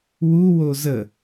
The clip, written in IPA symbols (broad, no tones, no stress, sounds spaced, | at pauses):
w u w o z ə